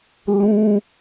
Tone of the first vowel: high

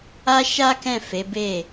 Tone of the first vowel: high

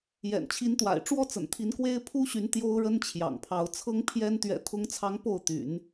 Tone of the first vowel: low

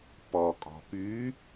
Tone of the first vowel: low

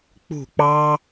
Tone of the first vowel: falling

